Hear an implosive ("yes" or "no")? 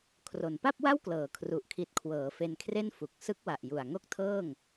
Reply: no